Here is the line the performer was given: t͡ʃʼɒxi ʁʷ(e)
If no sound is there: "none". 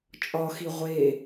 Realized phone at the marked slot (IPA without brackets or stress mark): e